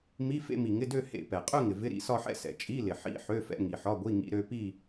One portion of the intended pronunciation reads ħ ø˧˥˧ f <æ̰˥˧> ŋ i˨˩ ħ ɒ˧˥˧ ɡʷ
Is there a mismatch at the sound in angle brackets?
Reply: yes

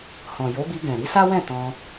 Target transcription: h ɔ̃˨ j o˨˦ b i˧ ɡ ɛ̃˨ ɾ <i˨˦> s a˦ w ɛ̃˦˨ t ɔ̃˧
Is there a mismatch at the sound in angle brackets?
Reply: no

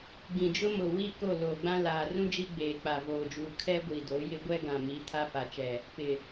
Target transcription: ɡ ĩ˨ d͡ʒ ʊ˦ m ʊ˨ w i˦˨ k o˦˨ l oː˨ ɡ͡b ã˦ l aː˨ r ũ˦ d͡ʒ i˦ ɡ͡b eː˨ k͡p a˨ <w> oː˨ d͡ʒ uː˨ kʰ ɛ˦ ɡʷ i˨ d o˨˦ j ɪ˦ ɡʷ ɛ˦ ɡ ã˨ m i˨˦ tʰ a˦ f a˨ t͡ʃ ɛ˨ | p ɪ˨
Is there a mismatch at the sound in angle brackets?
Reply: yes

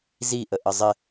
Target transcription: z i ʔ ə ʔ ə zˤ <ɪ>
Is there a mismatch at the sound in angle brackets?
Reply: no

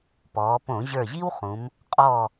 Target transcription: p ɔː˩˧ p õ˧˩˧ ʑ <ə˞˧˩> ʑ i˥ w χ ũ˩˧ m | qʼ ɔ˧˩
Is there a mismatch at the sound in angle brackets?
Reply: no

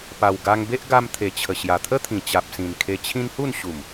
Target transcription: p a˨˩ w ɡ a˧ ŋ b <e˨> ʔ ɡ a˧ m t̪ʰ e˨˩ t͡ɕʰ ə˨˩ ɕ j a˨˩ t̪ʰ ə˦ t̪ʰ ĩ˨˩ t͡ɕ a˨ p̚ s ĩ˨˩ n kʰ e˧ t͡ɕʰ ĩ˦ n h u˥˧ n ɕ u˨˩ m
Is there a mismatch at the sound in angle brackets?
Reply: yes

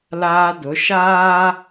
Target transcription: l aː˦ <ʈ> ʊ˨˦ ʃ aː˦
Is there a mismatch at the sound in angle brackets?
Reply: yes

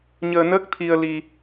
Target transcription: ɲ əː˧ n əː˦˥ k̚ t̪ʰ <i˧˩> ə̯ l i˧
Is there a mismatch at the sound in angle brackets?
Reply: yes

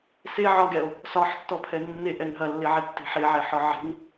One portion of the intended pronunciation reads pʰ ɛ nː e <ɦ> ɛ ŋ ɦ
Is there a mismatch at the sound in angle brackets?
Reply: yes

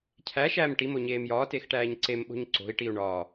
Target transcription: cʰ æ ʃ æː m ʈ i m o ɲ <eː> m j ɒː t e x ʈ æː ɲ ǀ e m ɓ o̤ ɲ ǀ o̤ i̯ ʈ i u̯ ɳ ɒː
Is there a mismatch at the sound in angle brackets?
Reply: no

